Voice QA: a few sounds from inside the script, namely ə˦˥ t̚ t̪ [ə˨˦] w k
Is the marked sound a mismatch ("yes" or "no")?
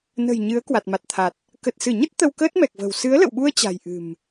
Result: yes